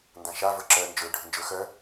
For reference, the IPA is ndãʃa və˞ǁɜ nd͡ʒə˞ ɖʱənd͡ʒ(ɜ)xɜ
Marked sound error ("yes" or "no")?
yes